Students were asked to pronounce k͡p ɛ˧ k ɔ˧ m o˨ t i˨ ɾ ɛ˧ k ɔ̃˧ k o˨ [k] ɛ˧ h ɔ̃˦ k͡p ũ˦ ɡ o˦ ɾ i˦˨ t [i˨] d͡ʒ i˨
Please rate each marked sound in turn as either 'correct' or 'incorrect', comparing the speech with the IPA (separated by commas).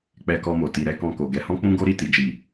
incorrect, correct